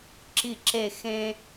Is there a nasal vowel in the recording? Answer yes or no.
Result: yes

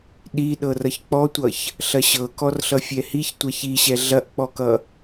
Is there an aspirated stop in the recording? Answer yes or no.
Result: no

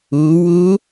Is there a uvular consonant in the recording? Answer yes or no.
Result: no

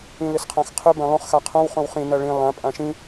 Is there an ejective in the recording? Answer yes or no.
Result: yes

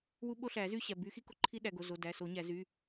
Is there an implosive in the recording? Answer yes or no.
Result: yes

